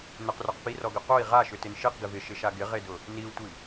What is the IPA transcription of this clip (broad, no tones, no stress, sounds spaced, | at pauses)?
n ʊ q r œ q p i r ɔ ɡ ʏ q o i̯ ʁ a ʃ ʏ t ɪ n ʃ i q ɡ ɪ v ɪ ʃ ɪ ʃ a ɡ ɪ ʁ e d ʊ | n i u̯ tʷ i